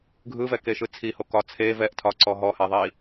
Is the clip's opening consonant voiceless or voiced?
voiced